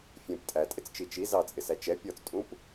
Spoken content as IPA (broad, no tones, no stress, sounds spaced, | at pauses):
fʲ ɛ̃ p tʼ æ tʼ ɪ t͡s t͡ʃ i t͡ʃ i z ɑ t͡sʼ ɪ s æ t͡ʃ ɛ pʲ ɔ t͡s tʼ ũ p